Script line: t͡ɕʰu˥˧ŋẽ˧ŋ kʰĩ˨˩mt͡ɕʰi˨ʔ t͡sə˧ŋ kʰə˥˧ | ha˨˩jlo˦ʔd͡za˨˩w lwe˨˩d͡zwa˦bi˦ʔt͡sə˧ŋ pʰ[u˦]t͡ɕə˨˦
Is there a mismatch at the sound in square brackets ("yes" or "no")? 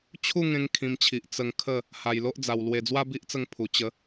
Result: yes